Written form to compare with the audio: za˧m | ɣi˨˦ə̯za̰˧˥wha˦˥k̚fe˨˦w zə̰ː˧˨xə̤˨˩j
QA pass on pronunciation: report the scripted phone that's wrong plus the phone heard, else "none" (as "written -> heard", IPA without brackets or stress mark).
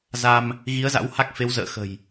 none